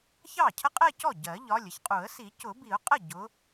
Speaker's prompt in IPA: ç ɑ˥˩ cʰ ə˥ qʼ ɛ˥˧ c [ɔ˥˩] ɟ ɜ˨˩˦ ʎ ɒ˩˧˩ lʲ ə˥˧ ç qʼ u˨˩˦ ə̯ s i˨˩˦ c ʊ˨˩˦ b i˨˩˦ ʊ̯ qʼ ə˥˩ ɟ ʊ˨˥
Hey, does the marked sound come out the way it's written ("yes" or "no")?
yes